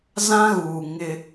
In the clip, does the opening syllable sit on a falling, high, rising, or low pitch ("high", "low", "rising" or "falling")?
high